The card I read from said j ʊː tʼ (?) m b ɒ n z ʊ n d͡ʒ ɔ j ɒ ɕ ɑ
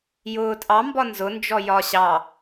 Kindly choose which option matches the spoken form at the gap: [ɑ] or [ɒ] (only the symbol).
ɑ